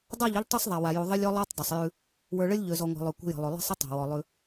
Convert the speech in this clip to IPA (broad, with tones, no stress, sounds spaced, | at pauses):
dˤ a˦˨ ʎ ə˦ ʎ tˤ y˦ sˤ ðˤ a˨ w a˨ j u˨ ðˤ ə˦ lʲ ɔ˦ lˠ a˦ tˤ dˤ ə˨ sˤ j ʉ˦ | w ə˞˨ ɭ ə˦ lʲ ʎ ø˨ z ɔ˨ ŋʷ a̤˨ lˠ ø˨ kʷ ə̤˦ j ə̤˨ lˠ ø˨ lˠ ə̤˦ sˤ ə˦ tˤ a̤˨ w ɔ˨ lˠ ʉ˦